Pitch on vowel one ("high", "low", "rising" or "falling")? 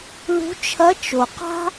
rising